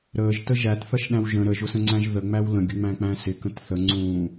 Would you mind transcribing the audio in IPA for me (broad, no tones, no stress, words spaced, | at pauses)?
ɾəːʒtə ʒætθʌʃɗæ̃w ʒə̃ ɾəʒʊsə̃ŋ͡ǀæ̃ʒ ðəŋ͡mæw lə̃ɡʲəŋ͡mæ̃k͡pæ̃ sɪkə̃t θəŋ͡ǀũː